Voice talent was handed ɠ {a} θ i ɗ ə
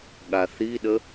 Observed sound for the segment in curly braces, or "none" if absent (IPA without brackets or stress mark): a